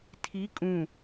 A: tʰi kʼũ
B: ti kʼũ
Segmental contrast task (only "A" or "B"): A